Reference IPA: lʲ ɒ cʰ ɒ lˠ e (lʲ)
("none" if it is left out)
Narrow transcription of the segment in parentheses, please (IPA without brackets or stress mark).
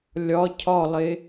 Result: none